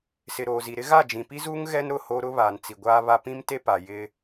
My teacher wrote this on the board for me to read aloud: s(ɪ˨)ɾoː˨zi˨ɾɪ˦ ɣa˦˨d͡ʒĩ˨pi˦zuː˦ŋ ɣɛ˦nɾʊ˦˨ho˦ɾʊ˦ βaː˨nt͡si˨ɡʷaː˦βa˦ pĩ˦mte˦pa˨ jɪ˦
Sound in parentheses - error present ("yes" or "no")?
no